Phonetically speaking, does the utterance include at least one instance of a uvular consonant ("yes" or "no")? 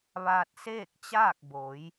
no